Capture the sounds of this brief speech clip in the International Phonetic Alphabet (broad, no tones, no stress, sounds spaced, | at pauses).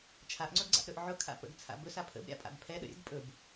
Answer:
t͡ʃʰ a ʔ ŋ͡ǀ ɵ ɡ ɡ͡ǀ a̰ ʔ ɾ ɵ ʔ ʕ ʊ kʰ a̰ p ə̰ ɡ t͡sʰ a̰ b ɵ s a pʰ ə̰ b ɾʲ a̰ pʼ a̰ b pʰ ɛ ɗ ə̰ ɾʲ ə̰ ɡ pʼ ɵ b